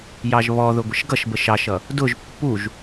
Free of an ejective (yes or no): yes